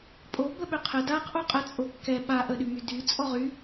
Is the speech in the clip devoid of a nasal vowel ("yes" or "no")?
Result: yes